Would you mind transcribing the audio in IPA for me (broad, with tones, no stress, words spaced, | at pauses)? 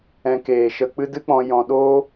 ɛ̃˧keː˨ʃə˧ k͡pɨ˧dɨ˧k͡pɔ̃˨ jɔ̃˨ɗoː˦